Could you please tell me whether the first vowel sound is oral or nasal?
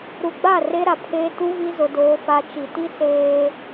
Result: oral